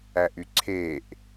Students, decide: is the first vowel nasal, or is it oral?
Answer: oral